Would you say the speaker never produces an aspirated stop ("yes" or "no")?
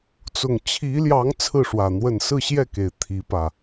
no